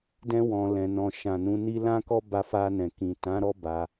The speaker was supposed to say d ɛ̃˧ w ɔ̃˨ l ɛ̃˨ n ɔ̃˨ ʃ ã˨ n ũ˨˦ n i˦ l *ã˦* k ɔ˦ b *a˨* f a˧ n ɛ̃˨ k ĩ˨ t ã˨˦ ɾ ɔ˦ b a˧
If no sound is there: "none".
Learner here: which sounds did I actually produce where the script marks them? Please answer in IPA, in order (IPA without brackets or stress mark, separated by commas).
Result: ã˦, a˧